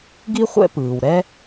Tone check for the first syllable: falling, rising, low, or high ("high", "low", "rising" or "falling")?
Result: high